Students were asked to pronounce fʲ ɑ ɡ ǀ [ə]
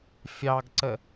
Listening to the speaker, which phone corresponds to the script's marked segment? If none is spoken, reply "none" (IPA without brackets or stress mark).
ə